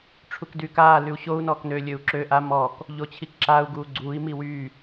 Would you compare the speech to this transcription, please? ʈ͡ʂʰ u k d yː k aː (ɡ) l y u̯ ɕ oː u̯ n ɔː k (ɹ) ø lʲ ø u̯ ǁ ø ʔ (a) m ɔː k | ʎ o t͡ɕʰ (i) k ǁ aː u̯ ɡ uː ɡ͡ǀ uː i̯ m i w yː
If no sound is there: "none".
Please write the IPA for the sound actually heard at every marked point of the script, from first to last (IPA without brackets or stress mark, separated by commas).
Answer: none, n, a, i